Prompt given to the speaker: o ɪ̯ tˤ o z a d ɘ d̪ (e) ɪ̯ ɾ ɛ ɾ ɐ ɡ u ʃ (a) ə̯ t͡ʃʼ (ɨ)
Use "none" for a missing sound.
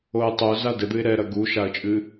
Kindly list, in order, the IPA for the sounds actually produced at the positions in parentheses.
ɨ, a, ɨ

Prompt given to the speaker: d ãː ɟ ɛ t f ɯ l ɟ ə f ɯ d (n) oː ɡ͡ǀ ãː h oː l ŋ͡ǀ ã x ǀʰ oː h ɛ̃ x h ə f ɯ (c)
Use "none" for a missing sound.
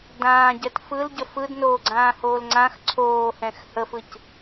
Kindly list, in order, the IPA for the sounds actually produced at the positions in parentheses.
n, c

